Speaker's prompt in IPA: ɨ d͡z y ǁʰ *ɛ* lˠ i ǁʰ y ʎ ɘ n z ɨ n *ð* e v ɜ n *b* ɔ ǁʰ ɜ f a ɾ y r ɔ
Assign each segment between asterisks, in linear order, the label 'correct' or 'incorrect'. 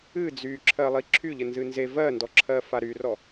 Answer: incorrect, incorrect, incorrect

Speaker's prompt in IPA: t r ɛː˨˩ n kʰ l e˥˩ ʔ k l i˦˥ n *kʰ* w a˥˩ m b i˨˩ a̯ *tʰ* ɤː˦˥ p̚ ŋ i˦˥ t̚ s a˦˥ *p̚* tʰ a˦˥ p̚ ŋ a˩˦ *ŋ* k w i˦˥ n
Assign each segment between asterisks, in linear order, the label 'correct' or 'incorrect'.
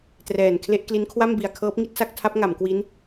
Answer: correct, incorrect, incorrect, incorrect

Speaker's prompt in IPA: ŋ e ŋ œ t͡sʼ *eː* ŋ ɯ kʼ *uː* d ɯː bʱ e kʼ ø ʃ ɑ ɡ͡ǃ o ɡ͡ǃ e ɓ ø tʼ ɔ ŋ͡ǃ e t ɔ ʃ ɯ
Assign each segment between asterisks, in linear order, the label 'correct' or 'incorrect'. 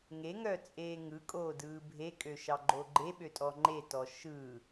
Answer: correct, incorrect

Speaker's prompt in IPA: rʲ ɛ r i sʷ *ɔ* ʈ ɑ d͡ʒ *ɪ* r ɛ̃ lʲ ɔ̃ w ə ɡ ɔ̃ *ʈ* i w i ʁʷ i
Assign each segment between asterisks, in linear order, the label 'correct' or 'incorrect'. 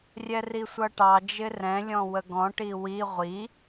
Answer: incorrect, correct, correct

